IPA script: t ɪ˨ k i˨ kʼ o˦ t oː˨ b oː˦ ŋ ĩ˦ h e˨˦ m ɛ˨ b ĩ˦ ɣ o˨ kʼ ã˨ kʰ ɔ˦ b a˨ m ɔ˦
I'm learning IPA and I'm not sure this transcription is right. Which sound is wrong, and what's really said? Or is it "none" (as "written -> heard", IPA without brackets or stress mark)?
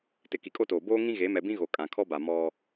h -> ɣ